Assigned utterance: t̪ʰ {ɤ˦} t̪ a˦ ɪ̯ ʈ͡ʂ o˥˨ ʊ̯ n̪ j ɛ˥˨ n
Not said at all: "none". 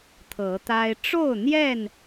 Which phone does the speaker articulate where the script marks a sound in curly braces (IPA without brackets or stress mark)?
ɤ˨˦